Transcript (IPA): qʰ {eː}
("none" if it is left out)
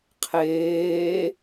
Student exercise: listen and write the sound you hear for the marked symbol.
eː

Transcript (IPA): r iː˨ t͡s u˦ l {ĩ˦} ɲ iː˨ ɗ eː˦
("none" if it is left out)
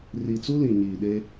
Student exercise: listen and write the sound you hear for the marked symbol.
ĩ˨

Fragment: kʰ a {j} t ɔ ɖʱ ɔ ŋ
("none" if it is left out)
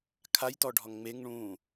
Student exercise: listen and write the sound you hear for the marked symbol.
j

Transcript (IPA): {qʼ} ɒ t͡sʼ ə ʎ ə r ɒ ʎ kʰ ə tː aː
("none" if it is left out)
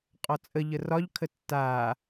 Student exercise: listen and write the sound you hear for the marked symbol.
qʼ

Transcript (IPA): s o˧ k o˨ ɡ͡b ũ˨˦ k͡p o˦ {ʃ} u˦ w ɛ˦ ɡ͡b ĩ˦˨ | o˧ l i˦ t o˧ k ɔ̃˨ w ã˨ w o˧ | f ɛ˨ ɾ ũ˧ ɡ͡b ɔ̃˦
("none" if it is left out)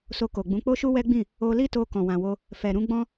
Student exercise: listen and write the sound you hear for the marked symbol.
ʃ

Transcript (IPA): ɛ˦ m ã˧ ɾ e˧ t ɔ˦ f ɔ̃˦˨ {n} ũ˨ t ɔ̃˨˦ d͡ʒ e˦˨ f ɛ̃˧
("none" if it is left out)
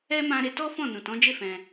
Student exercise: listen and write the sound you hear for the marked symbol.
n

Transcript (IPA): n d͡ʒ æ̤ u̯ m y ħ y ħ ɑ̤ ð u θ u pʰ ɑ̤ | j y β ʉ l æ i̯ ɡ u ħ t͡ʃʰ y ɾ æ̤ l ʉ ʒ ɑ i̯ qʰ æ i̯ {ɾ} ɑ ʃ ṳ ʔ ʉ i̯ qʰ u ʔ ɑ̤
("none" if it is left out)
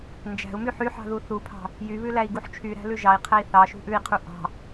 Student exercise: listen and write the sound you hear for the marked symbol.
θ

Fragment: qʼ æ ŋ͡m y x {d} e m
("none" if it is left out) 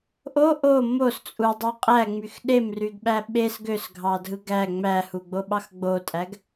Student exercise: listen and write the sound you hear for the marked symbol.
ɗ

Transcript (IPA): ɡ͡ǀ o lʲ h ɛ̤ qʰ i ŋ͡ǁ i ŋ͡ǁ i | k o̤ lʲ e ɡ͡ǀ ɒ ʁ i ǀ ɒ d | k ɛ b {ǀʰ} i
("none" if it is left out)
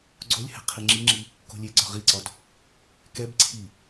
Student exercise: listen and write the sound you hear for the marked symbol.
ǀʰ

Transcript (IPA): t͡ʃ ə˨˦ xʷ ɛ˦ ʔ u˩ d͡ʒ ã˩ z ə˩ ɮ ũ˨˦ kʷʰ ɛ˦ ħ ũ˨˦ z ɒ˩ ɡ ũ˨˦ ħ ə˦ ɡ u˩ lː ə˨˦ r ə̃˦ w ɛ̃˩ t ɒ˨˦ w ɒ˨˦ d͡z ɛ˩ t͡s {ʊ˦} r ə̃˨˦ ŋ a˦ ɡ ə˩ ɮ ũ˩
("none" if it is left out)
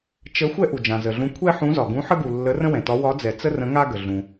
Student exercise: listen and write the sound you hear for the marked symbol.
ə˦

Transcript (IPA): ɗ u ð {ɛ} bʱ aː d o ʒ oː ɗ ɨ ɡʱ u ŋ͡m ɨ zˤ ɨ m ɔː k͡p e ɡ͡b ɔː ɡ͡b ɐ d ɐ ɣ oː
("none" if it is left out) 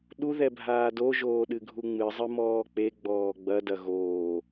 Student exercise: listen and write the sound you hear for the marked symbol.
ɛ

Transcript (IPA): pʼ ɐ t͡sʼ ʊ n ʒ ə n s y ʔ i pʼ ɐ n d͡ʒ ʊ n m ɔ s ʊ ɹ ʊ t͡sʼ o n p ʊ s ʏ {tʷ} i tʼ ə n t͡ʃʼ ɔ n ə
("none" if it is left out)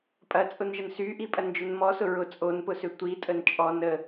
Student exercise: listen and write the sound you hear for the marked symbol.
tʷ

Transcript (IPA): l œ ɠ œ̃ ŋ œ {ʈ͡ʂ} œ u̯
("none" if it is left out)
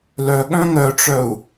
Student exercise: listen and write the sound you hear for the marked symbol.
ʈ͡ʂ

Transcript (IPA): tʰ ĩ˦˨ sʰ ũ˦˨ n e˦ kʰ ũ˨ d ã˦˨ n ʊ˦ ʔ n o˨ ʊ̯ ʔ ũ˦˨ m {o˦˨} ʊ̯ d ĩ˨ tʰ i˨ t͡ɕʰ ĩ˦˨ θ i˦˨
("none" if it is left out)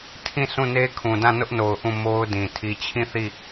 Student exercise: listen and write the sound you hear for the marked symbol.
o˦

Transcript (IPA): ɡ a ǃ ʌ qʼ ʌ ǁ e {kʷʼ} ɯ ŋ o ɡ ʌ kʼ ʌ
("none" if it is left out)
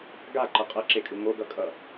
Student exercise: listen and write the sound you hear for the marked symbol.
kʼ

